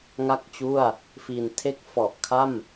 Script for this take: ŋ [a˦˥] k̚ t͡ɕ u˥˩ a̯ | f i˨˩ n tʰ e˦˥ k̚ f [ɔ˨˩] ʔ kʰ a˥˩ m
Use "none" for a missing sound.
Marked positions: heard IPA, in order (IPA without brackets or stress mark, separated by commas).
a˥˩, ɔ˨˩